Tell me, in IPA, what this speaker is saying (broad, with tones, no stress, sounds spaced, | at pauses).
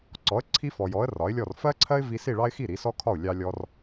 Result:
ǀ ɔ˩˥ ə̯ ǀʰ i˧ f ɔ˩ j ɔ˩˥ ə̯ r ɒ˩˥ ɪ̯ lʲ ɔ˥˩ r f ɜ˥ ǀʰ ɜ˥ ɪ̯ v i˧ s i˥˩ ɭ ɑ˥ ɪ̯ x i˥˩ ɾ i˩˥ s ɔ˥ kʰ ɒ˥˩ ʊ̯ lʲ ɑ˧ lʲ ɔ˧ r